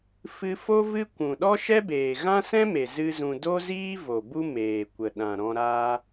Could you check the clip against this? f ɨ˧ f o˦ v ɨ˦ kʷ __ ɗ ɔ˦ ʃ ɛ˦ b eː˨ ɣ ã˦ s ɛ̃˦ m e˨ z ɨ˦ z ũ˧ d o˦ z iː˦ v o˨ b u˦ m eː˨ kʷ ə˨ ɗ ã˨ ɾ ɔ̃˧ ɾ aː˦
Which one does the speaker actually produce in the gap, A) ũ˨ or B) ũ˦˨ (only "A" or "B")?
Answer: A